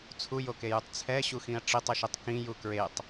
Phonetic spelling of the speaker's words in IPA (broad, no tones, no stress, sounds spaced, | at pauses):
t͡sʰ u j o k e j u tˤ t͡sʰ ɛ ɕ u x ĩ ɐ̯ ʈ͡ʂ i tˤ ɯ ʃ i tˤ k ĩ j u k ɹ e tˤ